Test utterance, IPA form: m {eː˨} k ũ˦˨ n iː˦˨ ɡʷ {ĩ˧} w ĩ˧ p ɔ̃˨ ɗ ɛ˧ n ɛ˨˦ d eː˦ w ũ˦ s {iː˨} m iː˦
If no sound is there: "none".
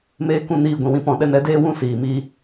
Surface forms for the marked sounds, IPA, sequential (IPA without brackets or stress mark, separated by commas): eː˦, ĩ˨, iː˨